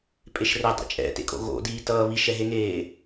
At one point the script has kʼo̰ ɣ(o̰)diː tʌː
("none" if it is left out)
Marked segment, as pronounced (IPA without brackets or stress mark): o̰